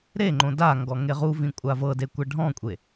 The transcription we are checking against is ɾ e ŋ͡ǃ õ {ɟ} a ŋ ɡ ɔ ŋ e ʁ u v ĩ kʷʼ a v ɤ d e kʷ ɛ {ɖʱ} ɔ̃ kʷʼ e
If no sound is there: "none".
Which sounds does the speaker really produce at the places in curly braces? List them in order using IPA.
d, ɖʱ

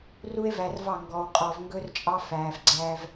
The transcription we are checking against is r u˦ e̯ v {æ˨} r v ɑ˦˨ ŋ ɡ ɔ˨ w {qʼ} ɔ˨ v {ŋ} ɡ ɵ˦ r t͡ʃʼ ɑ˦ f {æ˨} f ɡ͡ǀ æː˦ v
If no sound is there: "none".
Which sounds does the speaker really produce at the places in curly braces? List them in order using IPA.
æ˨, qʼ, ŋ, æː˨

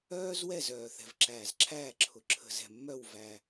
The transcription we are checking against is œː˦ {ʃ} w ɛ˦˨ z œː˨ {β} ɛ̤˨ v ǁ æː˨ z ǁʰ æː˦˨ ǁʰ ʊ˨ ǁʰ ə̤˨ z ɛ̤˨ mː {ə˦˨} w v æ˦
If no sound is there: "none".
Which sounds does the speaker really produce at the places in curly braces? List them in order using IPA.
z, θ, œ˦˨

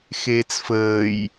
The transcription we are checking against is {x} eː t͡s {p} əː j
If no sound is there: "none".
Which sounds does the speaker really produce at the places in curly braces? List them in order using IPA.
x, f

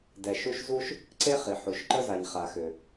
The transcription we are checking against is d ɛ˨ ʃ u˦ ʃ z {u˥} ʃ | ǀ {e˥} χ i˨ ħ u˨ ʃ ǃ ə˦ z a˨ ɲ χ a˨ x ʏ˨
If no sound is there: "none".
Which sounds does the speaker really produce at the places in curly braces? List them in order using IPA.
u˥, e˥

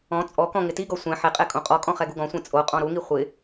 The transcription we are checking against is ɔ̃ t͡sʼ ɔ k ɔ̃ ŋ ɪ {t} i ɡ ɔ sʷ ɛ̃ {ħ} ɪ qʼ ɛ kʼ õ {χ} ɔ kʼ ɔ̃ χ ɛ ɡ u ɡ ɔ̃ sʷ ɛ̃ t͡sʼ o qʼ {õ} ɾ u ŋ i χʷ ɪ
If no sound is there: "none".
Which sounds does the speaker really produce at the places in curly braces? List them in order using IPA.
t, ħ, qʼ, ɔ̃

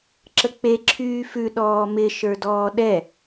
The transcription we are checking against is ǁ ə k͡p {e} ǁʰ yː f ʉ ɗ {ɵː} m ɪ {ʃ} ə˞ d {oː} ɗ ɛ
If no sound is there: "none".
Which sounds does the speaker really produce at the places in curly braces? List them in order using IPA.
e, ɔː, ʃ, ɔː

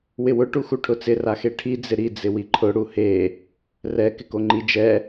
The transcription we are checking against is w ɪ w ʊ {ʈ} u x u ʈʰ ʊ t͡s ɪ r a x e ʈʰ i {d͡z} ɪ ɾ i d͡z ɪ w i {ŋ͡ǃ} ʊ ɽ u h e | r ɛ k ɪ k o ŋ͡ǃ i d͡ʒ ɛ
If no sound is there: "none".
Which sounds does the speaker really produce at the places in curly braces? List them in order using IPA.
ʈ, d͡z, ǃʰ

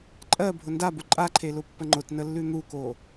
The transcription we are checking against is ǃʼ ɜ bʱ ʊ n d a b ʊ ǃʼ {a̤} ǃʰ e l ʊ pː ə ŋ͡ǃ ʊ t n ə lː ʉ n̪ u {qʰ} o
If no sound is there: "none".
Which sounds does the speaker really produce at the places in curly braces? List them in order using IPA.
a, k

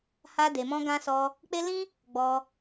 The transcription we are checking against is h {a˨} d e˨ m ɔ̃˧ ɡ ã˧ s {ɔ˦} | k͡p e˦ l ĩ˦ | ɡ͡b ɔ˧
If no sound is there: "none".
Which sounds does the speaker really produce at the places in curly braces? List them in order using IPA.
a˧, ɔ˧

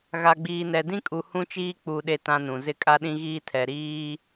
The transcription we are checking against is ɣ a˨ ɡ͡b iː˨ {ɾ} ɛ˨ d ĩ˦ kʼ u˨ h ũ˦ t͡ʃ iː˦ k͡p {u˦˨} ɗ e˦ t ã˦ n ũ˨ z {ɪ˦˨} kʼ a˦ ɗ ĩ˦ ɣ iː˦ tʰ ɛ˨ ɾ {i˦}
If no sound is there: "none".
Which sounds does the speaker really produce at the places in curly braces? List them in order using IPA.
n, u˨, ɪ˦˨, iː˦

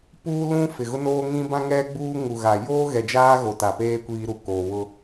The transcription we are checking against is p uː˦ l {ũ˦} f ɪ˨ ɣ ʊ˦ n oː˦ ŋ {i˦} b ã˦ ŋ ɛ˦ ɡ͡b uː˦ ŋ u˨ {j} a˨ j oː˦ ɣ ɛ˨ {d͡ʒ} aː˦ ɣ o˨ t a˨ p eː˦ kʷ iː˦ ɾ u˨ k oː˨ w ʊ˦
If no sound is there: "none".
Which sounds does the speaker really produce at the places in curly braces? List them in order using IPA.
ũ˦, ĩ˦, ɣ, d͡ʒ

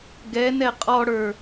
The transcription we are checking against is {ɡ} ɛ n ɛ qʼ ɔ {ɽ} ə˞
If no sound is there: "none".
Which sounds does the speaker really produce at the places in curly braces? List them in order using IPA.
ɡ, ɽ

